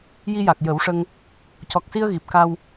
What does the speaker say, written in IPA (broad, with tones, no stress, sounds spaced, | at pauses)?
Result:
j i˧ j a˨˩ k̚ j ə˨˩˦ w ʂ ə˧ ŋ | c ɔ˨˩ k̚ s i˧ ə̯ ɣ i˨˩ p̚ k a˧ w